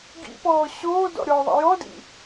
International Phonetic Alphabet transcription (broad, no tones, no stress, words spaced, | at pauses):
ɡḭpɔː ɕoː dɔ̰ɾʲɔðˤa̰ jɔdḭ